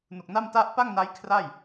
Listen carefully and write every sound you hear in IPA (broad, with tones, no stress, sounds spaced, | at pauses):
n u˨˩ k̚ n a˥˩ m t a˥˩ ʔ p a˥˩ ŋ n a˦˥ j kʰ r a˥˩ j